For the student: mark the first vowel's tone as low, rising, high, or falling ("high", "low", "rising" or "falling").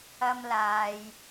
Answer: high